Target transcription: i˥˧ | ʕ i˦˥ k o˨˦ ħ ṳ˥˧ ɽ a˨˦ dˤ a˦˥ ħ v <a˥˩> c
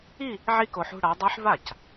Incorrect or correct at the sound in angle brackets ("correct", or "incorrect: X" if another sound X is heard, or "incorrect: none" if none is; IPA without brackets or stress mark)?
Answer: correct